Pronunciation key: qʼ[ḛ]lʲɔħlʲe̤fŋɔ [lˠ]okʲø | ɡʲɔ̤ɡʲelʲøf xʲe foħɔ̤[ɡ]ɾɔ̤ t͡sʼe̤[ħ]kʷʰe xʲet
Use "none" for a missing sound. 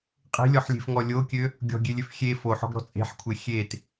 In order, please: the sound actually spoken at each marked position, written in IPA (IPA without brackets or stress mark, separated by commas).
e̤, lʲ, ɡ, ħ